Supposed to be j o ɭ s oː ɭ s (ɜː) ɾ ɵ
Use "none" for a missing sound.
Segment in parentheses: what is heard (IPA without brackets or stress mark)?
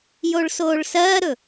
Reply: ɜː